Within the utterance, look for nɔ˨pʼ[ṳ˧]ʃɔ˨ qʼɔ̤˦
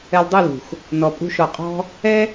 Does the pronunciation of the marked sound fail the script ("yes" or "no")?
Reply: no